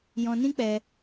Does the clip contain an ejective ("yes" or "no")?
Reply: no